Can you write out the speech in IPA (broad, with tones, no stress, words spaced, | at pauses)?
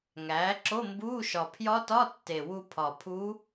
ŋæː˩˥ ǁo˧˥˧mbuː˧˥˧ ʃɒ˨˩pʰjɒ˧˥tɒ˧˥˧ tːe˨˩wu˧pʰɒ˨˩ pʰu˧˥